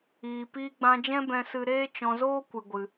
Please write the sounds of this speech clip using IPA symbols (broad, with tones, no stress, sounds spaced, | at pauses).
iː˨ p iː˧ ɡ͡b ã˧ d͡ʒ ɛ̃˦ b ɛ̃˧ s ɨ˧ ɾ eː˦ t͡ʃ ɔ̃˧ z oː˦ kʷ ɨ˧ ɡʷ ɨ˧